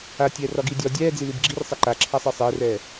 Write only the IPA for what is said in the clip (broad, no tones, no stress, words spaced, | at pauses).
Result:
aːtʲɛːrɒɡiː dʲɒ dʲɛːd͡zilib ɡ͡ǁirsˤɛ ǃaǁʰasˤi sˤɛːrɛː